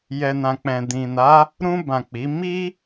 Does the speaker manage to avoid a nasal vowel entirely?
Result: no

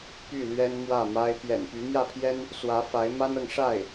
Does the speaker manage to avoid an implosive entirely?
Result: yes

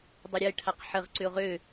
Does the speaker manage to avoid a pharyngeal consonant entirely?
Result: no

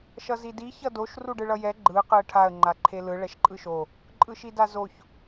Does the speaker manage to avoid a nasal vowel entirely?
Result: yes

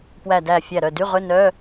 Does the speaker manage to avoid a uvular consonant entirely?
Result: no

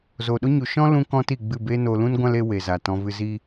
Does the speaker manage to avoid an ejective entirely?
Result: yes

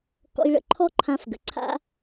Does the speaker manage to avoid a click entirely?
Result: no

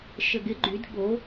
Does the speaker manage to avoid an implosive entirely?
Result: no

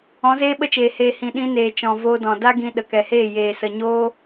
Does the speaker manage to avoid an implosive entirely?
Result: no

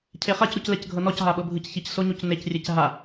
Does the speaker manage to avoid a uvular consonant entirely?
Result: no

